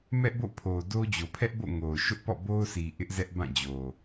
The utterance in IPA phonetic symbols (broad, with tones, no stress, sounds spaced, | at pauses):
m ɛ˦ ʔ b o̰˦˨ pʰ o˨ d o˦ d͡ʑ o˨ pʰ ɛ˦ ʔ b o̰˦˨ ŋ o˨ ʊ̯ ʃ ʊ˦ ʔ p ɔ̰˦˨ b o˦ ʊ̯ s i˨ ʔ ɪ˦ ʔ z ɛ˦ ʔ b ã˦˨ d͡ʑ o˨